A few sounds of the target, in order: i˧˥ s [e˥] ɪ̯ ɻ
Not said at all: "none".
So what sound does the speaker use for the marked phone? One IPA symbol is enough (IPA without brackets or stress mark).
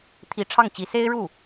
e˥